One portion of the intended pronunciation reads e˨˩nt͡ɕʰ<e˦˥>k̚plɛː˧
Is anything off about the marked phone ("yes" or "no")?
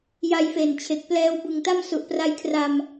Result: yes